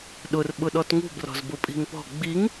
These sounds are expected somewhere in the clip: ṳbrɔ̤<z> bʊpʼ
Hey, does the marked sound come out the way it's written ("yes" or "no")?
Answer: yes